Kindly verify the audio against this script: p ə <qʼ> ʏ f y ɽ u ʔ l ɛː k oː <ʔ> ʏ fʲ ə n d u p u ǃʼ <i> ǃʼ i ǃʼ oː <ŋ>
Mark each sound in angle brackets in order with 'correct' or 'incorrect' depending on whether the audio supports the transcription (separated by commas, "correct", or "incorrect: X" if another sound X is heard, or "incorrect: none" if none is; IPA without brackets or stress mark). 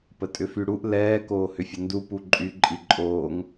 incorrect: tʼ, incorrect: h, incorrect: y, correct